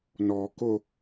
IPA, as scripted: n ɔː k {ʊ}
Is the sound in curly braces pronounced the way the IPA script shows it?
yes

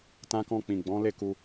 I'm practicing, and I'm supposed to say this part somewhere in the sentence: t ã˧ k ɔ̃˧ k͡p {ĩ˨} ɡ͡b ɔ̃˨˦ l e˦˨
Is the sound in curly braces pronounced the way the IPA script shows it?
yes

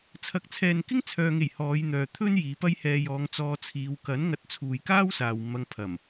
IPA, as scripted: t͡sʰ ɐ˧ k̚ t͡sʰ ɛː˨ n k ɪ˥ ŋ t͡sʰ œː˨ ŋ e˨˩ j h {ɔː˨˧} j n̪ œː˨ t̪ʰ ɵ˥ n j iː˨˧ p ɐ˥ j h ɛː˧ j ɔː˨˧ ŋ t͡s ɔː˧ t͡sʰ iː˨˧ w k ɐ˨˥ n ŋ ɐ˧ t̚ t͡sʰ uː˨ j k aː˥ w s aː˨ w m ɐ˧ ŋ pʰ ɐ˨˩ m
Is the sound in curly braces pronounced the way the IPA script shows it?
yes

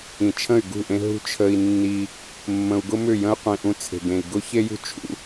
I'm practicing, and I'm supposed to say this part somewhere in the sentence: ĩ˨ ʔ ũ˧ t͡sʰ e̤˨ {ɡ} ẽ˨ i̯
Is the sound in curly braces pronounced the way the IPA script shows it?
yes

